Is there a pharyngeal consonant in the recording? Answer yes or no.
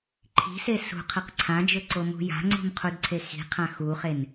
no